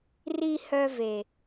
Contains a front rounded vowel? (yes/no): yes